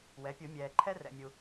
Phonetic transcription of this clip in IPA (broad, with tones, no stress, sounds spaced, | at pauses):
w ɛ˩˥ pʲ u˨˩˦ mʲ ɛː˨ ǃʰ ɛ˥ r ɛ̰˨ mʲ u˨